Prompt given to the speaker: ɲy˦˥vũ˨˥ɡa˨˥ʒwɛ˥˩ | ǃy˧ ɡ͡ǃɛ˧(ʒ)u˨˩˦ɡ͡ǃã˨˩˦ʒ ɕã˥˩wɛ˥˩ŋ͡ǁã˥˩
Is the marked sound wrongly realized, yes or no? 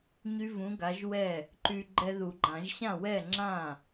yes